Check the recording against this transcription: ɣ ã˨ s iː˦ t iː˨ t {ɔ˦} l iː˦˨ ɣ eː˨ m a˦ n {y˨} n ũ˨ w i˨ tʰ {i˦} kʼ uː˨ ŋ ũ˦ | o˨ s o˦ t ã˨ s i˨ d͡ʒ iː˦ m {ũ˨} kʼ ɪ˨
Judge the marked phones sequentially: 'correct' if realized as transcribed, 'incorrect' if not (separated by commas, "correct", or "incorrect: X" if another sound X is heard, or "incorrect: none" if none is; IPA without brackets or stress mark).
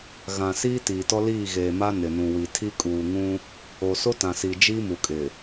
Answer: correct, incorrect: ɪ˨, correct, incorrect: u˨